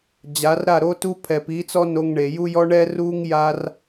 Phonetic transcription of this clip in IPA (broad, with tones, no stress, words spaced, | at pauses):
d͡ʑa˨˦rɾa˦˨ɾo˦tu˦ pʰɛ˨pi˨˦t͡sɔ˦ no˧ŋɳe˨ ju˦jɔ˦ɳɛ˦ ru˦ŋ ja˦r